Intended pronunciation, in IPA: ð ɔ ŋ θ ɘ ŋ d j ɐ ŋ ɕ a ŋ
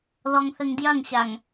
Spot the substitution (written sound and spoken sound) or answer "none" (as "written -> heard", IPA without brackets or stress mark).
none